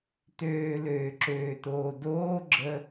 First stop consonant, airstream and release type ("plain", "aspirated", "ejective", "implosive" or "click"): plain